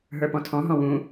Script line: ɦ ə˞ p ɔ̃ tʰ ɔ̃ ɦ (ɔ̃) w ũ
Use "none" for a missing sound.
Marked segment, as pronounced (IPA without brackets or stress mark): ɔ̃